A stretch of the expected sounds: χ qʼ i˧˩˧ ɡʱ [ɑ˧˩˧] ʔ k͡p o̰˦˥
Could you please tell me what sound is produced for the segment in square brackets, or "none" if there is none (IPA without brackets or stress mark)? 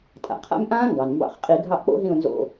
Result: ɑ˦˨